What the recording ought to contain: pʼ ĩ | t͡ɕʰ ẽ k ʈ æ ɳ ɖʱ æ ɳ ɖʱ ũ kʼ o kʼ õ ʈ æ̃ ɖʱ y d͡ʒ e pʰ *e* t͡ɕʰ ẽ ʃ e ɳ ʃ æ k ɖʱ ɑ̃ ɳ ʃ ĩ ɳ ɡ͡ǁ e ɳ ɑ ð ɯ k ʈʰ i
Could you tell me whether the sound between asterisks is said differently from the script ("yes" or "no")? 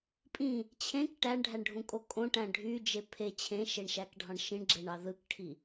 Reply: no